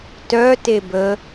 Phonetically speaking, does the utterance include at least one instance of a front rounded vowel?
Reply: yes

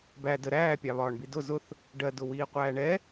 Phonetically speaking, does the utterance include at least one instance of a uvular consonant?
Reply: yes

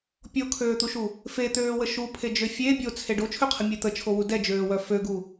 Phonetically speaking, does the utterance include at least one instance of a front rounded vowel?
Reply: yes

